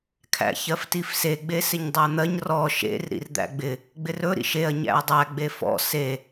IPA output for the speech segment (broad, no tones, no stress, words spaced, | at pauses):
kʰæ̰çɜftifse ɡ͡besɪɲdˤæn̪ɜɲ rɔ ʃḛr ɾḭrd̪æ̰ɡ͡bɪ | ɡ͡bɪrɵ ɾḭʃeɐ̯ ɲæ̰ɐ̯dˤæ ɡ͡befɔ̰ se